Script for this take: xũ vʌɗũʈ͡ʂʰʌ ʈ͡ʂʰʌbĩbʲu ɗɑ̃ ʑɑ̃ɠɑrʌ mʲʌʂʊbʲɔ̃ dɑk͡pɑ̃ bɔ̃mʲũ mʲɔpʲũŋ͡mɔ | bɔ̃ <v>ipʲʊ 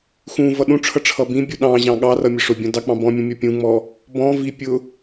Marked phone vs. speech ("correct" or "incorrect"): correct